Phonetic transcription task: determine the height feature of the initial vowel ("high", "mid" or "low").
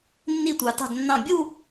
high